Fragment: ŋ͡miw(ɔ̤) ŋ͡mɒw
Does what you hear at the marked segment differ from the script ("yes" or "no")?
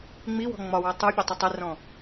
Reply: no